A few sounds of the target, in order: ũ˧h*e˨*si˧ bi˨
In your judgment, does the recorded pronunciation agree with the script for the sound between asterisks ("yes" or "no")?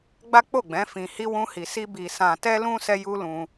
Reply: no